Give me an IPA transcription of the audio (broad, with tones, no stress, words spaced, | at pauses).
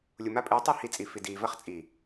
lʲu˨ma˦pʼɨː˨˦tˤi˦˨ hi˧t͡sʼi˨ fi˨ diː˨vɐ˦χt͡sʼi˨